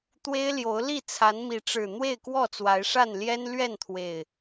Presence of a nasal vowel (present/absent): absent